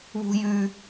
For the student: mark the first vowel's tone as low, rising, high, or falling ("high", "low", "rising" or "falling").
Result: high